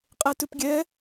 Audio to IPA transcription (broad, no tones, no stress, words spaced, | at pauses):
qʼetʉpɡʲɛ